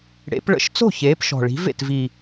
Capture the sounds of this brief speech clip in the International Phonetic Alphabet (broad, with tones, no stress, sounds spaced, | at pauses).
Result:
ɽ ḛ˨˩˦ p ɭ ə̰˧˥˧ ʃ t͡s o̤˥˩ ç eː˨˥ p ʃ ɔ̤˨˩ ɭ i̤˨˥ v ḛ˥˩ t v i˨˩